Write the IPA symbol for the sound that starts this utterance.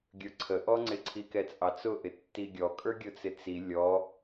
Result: ɡʲ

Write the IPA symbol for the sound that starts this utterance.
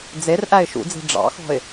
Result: d͡z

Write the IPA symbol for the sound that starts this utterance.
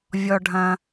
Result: vʲ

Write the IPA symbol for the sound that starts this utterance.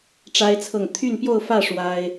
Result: ʈ͡ʂ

